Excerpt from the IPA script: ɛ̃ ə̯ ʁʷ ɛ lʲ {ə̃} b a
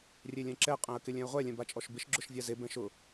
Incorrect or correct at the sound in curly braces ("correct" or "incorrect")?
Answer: incorrect